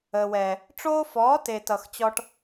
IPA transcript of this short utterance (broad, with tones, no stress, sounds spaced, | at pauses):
əː˨ w ɛː˨ | ʈ͡ʂ oː˦ f ɔː˨˦ t e˨ t ʌ˨ x t͡ɕ ɔ˦ ʈ